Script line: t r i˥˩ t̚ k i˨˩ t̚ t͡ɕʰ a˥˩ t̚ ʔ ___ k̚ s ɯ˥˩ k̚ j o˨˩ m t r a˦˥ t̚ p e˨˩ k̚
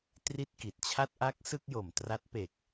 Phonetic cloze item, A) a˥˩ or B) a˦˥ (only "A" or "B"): B